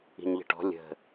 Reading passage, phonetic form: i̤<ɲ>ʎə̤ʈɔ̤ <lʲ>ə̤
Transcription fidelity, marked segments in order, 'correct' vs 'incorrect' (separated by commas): correct, correct